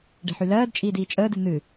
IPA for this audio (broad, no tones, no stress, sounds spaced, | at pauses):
ɖ e̤ ħ y l ɜː d t͡ʃʼ iː d iː t͡ʃʼ əː d ɨ n̪ ɨ